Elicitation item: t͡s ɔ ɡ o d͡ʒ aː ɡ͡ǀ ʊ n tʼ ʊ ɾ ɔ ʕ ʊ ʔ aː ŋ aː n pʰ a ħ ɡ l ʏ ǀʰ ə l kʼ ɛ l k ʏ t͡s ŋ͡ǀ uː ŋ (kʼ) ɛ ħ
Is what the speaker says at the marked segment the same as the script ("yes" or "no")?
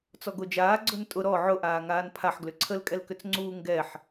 no